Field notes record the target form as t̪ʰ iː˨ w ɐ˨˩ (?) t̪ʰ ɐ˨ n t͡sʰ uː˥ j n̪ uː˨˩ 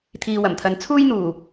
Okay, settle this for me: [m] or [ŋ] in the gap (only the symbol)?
m